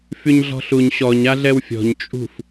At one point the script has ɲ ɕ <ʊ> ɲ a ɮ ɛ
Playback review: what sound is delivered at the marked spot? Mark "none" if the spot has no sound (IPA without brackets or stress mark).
ɔ